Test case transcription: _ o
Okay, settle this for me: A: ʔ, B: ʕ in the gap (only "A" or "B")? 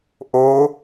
A